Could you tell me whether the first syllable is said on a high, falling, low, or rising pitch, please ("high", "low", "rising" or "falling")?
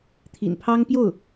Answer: low